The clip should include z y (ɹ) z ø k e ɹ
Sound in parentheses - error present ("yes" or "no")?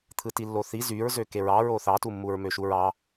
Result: no